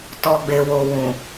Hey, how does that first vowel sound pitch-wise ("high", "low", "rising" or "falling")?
low